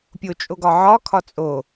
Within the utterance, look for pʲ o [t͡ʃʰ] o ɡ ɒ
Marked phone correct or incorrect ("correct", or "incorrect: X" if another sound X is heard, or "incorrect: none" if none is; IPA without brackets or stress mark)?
incorrect: t͡ʃʼ